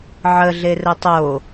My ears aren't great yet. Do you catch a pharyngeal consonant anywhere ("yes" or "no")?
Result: yes